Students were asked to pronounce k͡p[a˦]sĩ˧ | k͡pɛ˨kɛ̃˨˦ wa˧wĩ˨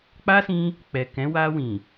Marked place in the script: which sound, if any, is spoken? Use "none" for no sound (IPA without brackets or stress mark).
a˦